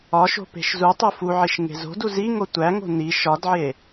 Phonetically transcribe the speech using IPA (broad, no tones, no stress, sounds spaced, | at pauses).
ɒ ʃ o̤ p e̤ ʃ z u tˤ o f u ʕ i ʃ ŋ e̤ z o̤ d u z i ŋ o tʷ æ ŋ o̤ n i ʃ ɒ d ʕ e